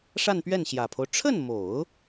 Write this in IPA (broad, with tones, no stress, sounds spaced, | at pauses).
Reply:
ʂ a˥˧ n p ɥ ɛ˥˩ n ɕ j ä˨˩ pʰ o˦ ʊ̯ ʈ͡ʂʰ ə˥˩ n m o˨˩˦ ʊ̯